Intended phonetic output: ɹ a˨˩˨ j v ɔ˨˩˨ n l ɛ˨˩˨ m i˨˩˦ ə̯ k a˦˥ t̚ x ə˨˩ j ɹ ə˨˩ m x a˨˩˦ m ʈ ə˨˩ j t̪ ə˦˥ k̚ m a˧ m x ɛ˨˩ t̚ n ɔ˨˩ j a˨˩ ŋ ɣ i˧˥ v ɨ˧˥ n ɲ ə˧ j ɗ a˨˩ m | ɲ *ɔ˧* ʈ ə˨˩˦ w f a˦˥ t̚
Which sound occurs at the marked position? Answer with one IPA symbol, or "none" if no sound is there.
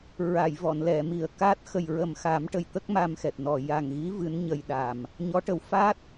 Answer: ɔ˧˥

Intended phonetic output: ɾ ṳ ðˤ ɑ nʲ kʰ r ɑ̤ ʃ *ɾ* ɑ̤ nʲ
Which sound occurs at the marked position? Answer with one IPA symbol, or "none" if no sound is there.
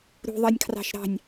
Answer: ɾ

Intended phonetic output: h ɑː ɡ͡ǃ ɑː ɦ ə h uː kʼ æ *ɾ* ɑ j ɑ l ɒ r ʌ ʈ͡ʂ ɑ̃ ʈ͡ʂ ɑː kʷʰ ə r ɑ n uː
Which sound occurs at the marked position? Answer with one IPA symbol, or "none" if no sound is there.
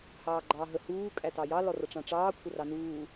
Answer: t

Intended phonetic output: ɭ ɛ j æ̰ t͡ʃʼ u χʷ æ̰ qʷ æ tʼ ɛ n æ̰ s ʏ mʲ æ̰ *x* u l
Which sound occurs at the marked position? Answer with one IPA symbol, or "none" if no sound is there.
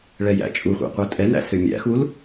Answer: x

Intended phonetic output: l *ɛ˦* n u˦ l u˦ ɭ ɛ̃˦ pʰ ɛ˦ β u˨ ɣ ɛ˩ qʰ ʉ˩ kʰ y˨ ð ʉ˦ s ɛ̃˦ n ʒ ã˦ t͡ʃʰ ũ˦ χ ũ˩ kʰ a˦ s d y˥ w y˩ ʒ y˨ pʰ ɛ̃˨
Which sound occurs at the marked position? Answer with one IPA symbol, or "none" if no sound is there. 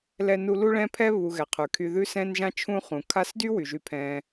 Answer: ɛ˦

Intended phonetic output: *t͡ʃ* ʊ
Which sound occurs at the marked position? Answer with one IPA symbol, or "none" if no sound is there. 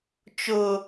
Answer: t͡ʃ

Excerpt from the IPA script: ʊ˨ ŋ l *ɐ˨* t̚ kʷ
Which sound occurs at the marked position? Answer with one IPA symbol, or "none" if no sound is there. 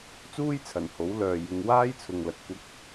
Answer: ɐ˨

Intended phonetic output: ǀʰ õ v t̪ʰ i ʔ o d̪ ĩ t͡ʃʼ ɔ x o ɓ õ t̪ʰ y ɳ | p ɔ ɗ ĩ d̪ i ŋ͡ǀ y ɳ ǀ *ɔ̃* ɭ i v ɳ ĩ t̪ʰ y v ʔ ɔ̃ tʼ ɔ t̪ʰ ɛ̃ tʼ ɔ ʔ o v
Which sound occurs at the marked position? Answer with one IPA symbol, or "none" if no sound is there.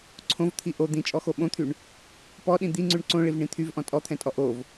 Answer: õ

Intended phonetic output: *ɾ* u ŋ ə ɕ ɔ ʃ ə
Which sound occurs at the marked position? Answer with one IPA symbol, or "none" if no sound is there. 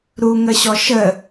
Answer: ɾ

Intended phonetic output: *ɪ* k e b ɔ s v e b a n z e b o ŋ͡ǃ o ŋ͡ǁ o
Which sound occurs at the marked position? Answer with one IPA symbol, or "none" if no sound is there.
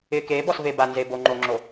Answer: ɪ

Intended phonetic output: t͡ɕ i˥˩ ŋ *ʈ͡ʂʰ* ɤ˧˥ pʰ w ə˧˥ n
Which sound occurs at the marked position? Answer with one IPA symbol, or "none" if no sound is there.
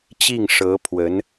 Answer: ʂ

